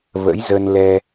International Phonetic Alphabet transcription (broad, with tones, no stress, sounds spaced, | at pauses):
v ə̰˧˥ j z ə˧ n l ɛ˧